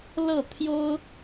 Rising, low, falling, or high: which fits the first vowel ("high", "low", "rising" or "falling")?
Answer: falling